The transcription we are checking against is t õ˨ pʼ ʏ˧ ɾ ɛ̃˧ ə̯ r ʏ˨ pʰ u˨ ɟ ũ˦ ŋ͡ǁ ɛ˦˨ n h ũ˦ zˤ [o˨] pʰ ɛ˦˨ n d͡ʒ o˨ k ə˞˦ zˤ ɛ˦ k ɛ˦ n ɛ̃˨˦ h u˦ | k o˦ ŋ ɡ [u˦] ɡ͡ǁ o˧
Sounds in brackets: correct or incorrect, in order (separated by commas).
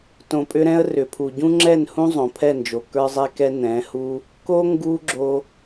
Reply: incorrect, correct